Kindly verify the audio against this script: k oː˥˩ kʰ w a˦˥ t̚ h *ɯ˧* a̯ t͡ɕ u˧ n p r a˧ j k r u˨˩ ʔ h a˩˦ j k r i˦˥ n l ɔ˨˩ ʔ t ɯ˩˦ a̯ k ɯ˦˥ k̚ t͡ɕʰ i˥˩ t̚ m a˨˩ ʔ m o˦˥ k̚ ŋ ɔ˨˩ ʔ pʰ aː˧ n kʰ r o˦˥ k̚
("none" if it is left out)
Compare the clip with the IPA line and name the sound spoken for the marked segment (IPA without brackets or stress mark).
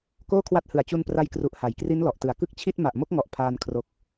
ɯ˨˩